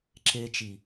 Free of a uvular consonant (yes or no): yes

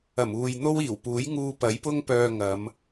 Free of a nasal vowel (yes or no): yes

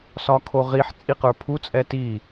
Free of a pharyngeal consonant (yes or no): no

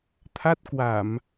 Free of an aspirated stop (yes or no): no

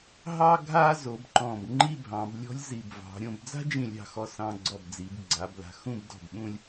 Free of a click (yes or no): no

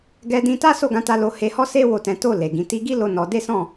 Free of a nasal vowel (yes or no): no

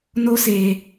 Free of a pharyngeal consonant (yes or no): yes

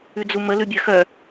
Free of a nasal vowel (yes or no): yes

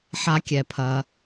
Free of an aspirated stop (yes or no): no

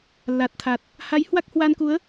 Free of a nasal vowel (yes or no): yes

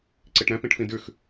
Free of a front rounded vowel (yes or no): yes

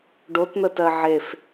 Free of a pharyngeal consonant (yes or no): no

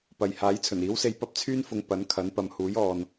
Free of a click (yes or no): yes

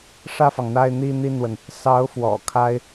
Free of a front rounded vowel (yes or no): yes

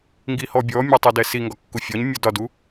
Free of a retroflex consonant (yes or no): yes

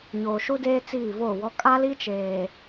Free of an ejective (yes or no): no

